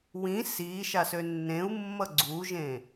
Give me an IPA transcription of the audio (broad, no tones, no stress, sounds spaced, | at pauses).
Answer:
w ĩ s i ʃ a s ø nː ẽ u̯ mː ʌ ɡ͡ǀ u ʒ ẽ